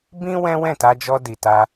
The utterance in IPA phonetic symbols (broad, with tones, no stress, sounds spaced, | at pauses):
b ĩ˦ w ɛ̃˦ w ɛ̃˦˨ t a˧ d͡ʒ ɔ˧ d i˨ t a˧